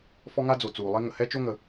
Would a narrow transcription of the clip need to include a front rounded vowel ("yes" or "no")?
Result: no